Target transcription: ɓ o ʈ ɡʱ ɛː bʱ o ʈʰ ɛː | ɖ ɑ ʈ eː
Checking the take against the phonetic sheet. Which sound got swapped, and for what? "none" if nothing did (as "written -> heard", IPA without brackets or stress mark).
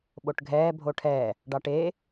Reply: none